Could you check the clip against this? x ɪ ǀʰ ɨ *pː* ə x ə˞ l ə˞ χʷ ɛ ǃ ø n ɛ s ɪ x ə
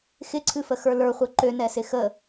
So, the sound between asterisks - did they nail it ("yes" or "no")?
no